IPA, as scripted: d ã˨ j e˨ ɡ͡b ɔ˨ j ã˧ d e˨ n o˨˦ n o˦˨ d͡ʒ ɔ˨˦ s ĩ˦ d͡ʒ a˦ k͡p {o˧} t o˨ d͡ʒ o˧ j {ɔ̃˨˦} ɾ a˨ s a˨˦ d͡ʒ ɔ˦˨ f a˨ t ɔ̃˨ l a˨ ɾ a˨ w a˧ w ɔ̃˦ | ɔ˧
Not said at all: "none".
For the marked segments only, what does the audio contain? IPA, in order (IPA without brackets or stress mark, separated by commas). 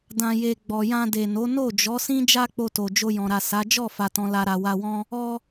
o˧, ɔ̃˨